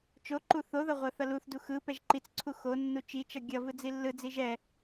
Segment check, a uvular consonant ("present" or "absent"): present